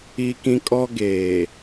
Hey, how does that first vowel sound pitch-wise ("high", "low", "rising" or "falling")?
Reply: high